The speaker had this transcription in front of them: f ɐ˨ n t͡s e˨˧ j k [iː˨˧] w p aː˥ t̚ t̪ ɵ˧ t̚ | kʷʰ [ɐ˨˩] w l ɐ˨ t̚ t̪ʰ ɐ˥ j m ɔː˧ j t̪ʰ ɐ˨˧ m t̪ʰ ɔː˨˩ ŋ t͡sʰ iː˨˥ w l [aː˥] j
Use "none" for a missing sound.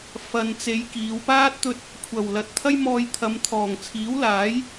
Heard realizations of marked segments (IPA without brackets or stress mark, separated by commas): iː˨˧, ɐ˨˩, aː˨˥